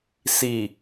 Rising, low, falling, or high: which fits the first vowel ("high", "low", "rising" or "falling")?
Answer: low